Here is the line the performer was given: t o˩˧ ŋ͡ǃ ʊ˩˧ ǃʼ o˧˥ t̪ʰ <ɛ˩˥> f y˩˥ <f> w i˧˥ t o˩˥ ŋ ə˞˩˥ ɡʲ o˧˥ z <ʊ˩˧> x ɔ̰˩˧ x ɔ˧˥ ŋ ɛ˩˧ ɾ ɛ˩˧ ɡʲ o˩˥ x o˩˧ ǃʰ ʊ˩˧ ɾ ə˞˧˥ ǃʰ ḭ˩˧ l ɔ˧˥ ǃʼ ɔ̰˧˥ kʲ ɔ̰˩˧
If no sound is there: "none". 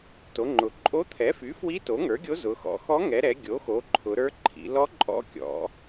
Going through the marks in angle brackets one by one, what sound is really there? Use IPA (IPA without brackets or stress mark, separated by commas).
ɛ˩˥, f, ʊ˩˧